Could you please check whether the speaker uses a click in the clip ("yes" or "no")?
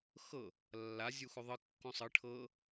no